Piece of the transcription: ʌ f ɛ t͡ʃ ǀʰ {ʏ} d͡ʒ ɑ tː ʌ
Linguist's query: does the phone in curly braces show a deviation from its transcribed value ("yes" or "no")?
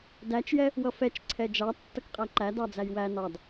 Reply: yes